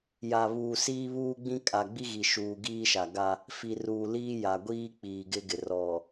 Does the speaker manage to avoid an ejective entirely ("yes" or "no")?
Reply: no